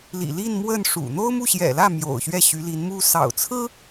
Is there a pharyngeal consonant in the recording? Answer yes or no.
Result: no